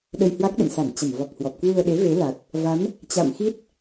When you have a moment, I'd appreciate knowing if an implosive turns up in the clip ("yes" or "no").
yes